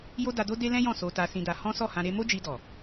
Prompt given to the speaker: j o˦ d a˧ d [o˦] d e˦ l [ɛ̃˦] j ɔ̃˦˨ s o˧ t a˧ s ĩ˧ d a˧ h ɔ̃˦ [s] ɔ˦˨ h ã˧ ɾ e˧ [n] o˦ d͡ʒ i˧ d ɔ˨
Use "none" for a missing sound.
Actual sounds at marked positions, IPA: o˦, ɛ̃˦, s, m

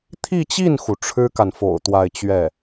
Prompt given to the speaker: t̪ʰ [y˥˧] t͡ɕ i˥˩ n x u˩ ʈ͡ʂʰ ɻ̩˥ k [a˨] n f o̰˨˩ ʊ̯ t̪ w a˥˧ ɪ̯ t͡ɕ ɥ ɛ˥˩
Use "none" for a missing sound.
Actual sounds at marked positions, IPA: i˥˧, a˨

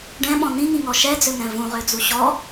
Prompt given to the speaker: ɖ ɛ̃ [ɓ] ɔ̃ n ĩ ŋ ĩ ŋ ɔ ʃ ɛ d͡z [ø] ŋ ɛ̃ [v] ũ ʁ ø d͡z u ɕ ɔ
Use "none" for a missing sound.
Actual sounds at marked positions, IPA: ɓ, ø, v

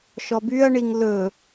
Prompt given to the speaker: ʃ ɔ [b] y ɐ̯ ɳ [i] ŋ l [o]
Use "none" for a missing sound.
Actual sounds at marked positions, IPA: b, i, ɵ

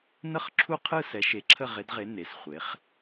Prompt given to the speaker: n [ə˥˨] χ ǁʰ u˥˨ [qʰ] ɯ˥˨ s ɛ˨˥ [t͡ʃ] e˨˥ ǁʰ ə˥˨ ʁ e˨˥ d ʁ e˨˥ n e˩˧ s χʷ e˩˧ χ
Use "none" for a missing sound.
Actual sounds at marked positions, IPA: ə˥˨, qʰ, ʃ

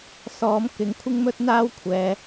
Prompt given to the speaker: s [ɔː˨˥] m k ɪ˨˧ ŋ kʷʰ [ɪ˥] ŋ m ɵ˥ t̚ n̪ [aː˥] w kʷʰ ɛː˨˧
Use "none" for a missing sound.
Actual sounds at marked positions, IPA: ɔː˨˥, ɪ˥, aː˥

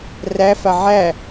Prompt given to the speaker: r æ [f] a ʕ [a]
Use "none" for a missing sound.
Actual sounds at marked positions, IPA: f, æ

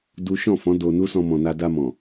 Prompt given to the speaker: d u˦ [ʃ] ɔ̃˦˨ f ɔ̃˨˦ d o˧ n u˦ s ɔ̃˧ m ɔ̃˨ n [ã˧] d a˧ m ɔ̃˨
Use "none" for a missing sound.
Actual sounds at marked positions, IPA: ʃ, a˧

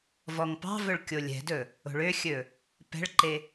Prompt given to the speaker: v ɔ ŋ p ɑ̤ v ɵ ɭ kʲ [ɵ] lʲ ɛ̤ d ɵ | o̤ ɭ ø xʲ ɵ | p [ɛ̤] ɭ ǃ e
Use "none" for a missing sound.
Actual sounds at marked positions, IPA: o, ɛ̤

